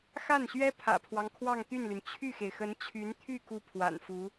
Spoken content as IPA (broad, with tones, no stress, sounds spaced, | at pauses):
x a˥˩ n ɕ ɥ ɛ˥ pʰ ä̰˨˩ pʰ w ɑ˦ ŋ kʰ w ɑ˥˧ ŋ t̪ y˥˩ n l y˩ n t͡ɕʰ y˥˩ x e˩ ɪ̯ x ə˧˥ n t͡ɕʰ y˧˥ n t̪ʰ y˥˧ k u˥˩ pʰ w a̰˨˩ n f u˧˥